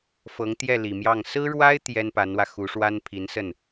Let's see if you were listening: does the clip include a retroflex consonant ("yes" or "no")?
yes